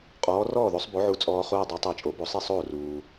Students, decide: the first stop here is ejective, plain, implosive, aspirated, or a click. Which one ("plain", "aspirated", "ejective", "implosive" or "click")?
ejective